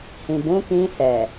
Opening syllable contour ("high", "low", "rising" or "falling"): low